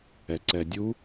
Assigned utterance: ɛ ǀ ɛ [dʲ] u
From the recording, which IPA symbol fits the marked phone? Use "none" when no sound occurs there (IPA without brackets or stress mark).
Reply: dʲ